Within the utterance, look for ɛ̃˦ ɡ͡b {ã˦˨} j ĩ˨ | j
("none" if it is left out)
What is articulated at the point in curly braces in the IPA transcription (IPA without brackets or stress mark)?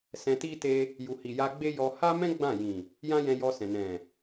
ã˦˨